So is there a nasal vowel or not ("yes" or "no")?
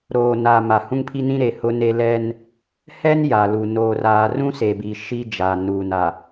yes